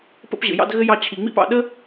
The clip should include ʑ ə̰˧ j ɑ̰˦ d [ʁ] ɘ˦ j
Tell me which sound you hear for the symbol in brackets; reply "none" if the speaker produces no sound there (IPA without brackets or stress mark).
ɣ